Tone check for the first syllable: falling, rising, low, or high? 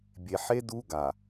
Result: low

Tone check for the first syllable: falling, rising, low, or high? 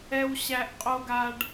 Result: high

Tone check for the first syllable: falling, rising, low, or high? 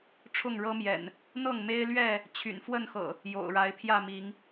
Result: falling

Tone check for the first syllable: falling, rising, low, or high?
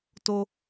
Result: high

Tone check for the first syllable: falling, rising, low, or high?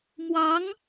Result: rising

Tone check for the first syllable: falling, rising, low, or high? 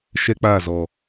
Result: high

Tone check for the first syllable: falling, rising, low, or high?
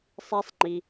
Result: high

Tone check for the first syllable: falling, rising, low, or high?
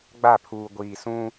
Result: falling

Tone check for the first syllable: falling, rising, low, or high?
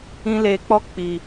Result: high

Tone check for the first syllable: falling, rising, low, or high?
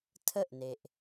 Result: falling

